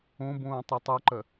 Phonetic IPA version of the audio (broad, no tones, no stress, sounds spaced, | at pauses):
õ b õː tˤ i tˤ o ǃ ɐ